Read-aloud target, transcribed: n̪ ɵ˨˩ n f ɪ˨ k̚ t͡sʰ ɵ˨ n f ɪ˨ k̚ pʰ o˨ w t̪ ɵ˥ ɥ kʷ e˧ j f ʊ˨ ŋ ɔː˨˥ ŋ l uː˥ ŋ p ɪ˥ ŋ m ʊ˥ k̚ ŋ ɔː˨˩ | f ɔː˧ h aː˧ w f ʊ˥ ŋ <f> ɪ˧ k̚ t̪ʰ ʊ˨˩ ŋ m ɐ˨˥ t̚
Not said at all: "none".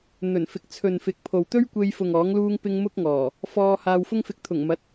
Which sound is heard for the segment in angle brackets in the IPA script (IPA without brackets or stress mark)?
f